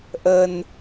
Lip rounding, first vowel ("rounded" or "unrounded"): unrounded